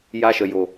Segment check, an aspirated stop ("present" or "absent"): absent